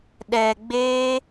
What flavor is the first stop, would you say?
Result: implosive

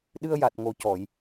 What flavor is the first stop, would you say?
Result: implosive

